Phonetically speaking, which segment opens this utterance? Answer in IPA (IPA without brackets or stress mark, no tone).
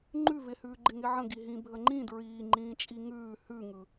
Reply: ŋ͡ǃ